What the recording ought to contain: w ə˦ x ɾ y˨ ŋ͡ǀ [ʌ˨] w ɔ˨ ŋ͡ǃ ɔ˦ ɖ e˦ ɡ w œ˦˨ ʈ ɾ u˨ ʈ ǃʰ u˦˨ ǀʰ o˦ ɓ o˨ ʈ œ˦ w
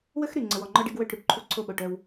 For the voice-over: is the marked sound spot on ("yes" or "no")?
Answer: no